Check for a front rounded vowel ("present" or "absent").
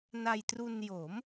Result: absent